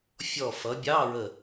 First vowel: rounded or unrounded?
rounded